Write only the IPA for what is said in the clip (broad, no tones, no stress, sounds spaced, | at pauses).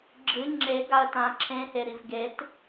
ɡ͡ǁ ɨ ŋ͡ǁ e ɡ a ə̯ t ã ǁʰ ẽ h e ɾ i v ɡ e t